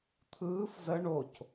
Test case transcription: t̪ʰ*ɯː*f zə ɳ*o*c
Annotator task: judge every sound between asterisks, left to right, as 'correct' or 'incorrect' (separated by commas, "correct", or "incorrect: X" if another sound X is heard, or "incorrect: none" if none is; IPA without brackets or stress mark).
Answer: correct, correct